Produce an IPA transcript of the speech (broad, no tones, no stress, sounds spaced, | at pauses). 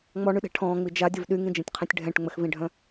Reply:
ŋ͡m ɔ ɳ y ɗ ɛ̤ ʈʰ ɔ̃ː ŋ͡m i d͡ʒ a dʲ ə v ɗ y ŋ ĩ d͡ʒ ĩ tʲ qʰ ĩ tʲ ɖʱ ɛ̃ ʈ ŋ͡m ə x v ĩ ɖʱ œ̃